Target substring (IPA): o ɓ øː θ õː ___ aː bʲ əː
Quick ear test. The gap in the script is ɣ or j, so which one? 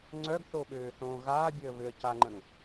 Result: ɣ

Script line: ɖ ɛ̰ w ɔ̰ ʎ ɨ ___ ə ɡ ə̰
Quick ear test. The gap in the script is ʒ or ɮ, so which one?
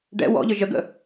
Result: ʒ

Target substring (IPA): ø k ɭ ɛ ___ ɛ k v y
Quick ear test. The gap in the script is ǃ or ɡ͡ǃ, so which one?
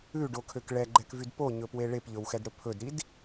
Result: ɡ͡ǃ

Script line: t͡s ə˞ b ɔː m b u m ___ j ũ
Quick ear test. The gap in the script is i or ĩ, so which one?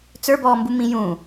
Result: ĩ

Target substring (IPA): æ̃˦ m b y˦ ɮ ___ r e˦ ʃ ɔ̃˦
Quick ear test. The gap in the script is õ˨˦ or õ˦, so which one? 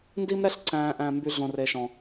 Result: õ˦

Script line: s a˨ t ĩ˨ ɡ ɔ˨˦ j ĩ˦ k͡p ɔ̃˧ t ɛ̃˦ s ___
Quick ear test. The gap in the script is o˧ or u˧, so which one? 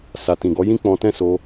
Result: o˧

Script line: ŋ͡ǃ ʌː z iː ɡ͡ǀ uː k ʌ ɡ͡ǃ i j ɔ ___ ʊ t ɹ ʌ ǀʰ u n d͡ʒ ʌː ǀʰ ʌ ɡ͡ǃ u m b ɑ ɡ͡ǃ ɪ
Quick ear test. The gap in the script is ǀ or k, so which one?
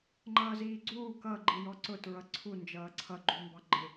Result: ǀ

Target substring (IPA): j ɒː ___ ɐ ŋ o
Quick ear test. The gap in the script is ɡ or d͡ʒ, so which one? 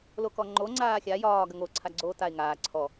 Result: ɡ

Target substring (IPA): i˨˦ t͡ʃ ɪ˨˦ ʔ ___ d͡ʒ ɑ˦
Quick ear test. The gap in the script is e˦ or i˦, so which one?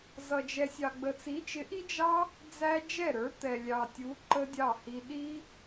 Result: i˦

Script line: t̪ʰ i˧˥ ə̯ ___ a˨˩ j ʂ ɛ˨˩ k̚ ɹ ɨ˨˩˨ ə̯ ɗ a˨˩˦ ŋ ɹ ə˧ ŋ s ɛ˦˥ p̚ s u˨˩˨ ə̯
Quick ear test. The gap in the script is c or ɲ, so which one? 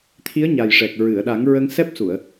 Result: ɲ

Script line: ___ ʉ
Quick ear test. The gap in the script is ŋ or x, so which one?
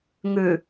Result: ŋ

